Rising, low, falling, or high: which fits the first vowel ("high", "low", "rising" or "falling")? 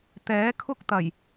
rising